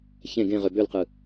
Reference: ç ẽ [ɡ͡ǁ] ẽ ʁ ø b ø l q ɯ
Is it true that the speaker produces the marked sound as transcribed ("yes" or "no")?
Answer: no